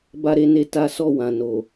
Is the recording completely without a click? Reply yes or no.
yes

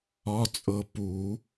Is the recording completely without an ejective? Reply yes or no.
no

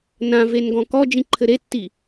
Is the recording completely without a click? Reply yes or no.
no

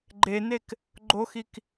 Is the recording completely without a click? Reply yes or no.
no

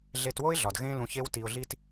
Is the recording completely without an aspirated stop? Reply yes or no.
yes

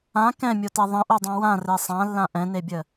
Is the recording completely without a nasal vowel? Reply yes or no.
no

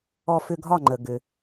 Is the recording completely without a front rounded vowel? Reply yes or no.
no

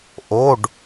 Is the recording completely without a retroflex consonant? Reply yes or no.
no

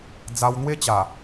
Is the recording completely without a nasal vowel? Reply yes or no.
yes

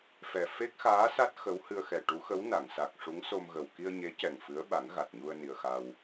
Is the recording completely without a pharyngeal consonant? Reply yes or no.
yes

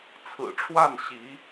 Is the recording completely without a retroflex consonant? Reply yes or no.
no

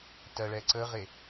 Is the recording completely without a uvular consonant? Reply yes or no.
no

